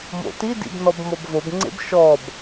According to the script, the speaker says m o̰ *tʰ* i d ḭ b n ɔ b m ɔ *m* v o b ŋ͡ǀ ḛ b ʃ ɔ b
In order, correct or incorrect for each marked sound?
incorrect, incorrect

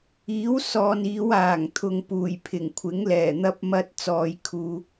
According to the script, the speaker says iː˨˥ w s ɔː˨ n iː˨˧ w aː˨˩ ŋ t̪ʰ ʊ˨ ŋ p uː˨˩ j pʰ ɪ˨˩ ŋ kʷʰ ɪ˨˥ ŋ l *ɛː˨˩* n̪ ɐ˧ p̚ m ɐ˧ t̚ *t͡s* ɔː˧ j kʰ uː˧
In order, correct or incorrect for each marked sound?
correct, correct

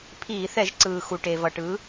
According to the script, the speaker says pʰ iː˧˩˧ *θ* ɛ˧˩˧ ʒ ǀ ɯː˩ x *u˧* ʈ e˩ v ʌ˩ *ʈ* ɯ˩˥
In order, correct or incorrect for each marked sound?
correct, incorrect, correct

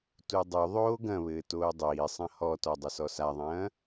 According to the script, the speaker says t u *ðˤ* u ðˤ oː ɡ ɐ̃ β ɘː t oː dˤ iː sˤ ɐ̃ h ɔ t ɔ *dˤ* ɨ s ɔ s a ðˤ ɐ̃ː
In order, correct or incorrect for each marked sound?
incorrect, correct

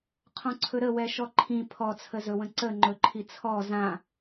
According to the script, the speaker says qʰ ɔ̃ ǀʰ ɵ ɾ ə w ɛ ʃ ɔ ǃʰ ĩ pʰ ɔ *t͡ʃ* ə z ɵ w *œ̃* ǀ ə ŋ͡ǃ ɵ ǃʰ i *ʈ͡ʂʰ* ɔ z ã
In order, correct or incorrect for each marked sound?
incorrect, incorrect, incorrect

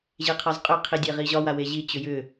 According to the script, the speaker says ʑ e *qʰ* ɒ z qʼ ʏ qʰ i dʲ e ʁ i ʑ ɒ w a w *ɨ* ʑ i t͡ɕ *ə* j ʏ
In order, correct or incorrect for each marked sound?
correct, incorrect, incorrect

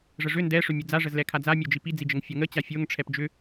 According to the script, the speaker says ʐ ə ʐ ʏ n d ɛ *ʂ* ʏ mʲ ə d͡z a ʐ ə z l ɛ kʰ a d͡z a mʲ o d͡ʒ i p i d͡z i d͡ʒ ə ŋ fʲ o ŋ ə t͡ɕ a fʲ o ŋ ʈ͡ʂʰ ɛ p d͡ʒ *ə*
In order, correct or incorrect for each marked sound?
correct, incorrect

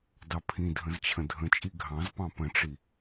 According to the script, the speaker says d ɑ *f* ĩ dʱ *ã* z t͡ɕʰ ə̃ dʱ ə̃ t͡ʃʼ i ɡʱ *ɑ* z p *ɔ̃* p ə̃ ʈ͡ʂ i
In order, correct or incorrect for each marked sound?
incorrect, incorrect, incorrect, incorrect

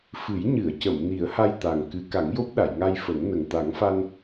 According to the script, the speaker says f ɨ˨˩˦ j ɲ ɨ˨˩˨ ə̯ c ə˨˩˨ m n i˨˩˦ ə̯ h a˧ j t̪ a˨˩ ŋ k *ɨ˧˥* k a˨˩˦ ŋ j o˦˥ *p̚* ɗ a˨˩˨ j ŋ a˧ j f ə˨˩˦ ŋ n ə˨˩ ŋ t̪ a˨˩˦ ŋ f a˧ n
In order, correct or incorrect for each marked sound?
correct, correct

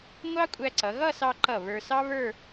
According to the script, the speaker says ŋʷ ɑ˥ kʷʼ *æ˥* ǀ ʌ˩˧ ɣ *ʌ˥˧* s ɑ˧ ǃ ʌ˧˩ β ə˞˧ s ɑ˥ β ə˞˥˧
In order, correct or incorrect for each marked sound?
incorrect, correct

